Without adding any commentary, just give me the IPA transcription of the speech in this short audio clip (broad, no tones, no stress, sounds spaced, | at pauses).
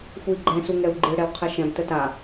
x u i̯ ɡ͡ǃ ɛ̃ s u ŋ ɛ u̯ ɡ͡ǃ ɨ ɽ ɛ w qʰ ɛ ʃ ɛ̃ b t ə t a